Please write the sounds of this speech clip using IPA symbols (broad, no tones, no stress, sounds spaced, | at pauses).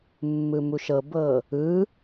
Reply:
mː ɯ m u ʃ ɤ b ɤ | ɯ